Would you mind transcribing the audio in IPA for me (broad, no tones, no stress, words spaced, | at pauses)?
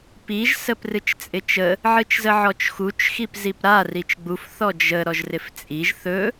piʒ səprɨt͡ʃt͡sʼɪt͡ʃə | ʕɨt͡ʃzəʕɔt͡ʃxut͡ʃ xipzipɾa rit͡ʃɡ͡buf θɔd͡ʒə ɾɔʒrɪft͡sʼiʒ θɵ